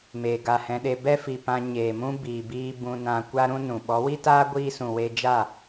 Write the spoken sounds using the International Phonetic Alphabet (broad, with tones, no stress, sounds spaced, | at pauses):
m eː˧ ɡ a˦˨ h ɛ̃˦ ɗ e˦ b ɛ˦ f i˨ p ã˧ ɲ eː˨ m ũ˦ b iː˨ b iː˧ b ũ˧ n ã˧ kʷ a˦ ɾ ũ˦ n ũ˨ ɓ ɔ˨˦ w i˦ t aː˦ ɡʷ iː˦ s ũ˨ w e˧ d͡ʒ a˦˨